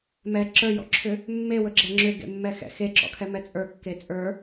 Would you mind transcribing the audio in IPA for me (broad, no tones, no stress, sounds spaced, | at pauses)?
m ɛ ǁ ə˞ j ɔ̰ ǁʰ ʏ | mː e w ɵ ɡ͡ǁ ɛ ŋ͡ǁ ʏ ɡ ḛ mː ɛ x ɛ̰ x e ǁ ɔ̰ kʰ ɛ m ɛ t͡sʼ ə˞ kː e t͡sʼ ə˞